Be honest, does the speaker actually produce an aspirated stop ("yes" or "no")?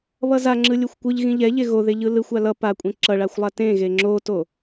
no